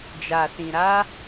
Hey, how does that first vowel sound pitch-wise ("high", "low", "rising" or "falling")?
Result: low